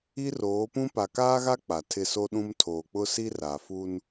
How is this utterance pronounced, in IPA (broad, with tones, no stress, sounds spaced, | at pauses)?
i˦ r oː˨˦ p ũ˦ p a˨ k aː˦ ɣ a˦ k͡p a˨ tʰ ɪ˦˨ s o˦ ɗ ũ˦ m tʰ oː˨ k͡p ʊ˦ s i˦ r a˨ f u˦ n